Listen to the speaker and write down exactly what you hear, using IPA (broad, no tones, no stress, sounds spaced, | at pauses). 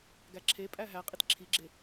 ɡ æ ǁʰ e pʼ æ ɦ æ qʼ i t ǁʰ i ɡ͡ǁ e